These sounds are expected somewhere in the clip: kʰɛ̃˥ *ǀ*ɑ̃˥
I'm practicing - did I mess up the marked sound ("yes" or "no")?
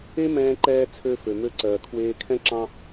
yes